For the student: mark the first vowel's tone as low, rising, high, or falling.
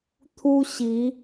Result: high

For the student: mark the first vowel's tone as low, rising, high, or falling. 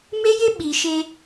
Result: high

